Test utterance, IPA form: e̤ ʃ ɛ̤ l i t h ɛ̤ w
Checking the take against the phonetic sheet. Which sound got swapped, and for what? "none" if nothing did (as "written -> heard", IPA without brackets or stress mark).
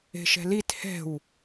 none